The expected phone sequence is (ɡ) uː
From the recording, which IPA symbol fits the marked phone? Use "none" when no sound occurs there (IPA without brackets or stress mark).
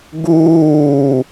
ɡ